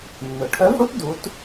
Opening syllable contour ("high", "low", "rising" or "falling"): low